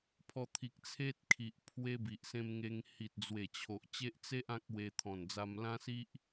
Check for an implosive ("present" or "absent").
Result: absent